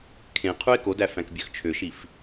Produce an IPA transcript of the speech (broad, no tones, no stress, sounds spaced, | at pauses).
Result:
kʰ ẽ qʰ u ɪ̯ k o d æ f æ̃ k bʲ ø x t͡ʃʰ ø ʃ i f